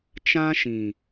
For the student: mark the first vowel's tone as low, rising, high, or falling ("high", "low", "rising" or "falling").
high